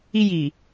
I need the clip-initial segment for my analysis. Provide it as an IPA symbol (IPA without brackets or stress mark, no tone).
i